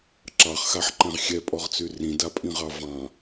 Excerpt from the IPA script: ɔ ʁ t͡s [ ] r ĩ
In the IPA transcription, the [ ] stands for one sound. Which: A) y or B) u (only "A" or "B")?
A